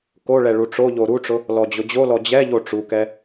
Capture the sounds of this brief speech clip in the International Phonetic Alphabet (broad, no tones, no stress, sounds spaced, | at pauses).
k o ɭ ɛ ɭ u ʈ͡ʂ o ʎ o ɾ u ʈ͡ʂ ʊ | l ɔ d͡ʑ ʊ d͡ʑ o l ɔ d͡ʑ ɛ ʎ o ʈ͡ʂ u k ɛ